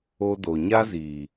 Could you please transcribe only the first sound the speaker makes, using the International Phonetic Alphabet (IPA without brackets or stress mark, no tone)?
o